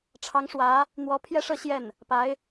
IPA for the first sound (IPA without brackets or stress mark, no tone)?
ʈ͡ʂʰ